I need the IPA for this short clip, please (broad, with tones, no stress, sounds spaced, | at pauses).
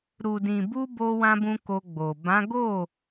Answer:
ɾ u˨ d ĩ˨ b u˧ b o˧ w ã˧ b ũ˧ k o˧ ɡ͡b o˨ b ã˨˦ ɡ o˦˨